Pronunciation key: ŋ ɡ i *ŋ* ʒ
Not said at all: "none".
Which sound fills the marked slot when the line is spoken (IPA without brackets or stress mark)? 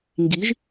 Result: none